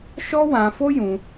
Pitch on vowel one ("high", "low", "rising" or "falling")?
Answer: high